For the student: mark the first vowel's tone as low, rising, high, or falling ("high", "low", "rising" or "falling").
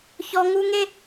high